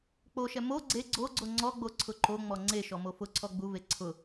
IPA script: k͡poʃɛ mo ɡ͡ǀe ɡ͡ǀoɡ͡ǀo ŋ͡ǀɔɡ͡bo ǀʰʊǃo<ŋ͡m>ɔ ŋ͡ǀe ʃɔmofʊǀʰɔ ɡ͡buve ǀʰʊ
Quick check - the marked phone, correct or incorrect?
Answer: correct